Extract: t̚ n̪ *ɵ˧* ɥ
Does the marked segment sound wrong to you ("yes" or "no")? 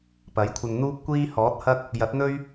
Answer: yes